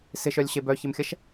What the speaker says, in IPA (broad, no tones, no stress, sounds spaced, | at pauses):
s ɪ ʃ œ lʲ ɕ e b œ ç ɪ m xʲ ɐ ʃ